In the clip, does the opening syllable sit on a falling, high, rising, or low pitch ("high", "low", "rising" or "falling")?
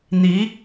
rising